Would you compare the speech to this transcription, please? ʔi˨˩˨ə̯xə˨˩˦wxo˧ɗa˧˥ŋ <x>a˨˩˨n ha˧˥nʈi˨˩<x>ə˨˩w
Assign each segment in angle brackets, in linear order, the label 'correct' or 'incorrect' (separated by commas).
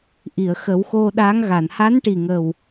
incorrect, incorrect